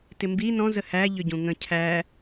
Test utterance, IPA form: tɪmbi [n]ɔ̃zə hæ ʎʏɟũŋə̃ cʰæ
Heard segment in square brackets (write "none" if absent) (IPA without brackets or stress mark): n